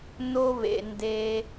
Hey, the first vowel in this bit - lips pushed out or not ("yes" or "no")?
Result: yes